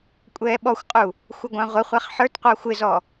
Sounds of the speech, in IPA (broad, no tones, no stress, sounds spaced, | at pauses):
kʷʼ ɛː ɓ ɔ xʷ qʼ u | xʷ ʌ ɡʷ ɑ̃ ʁʷ ə χʷ æ χ ħ ə˞ t qʷ ɑ xʷ ɪ z ɔ